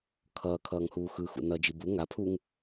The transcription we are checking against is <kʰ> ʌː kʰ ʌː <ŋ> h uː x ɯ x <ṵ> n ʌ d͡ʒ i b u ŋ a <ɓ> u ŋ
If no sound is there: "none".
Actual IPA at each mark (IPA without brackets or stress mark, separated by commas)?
kʰ, ŋ, ṵ, pʰ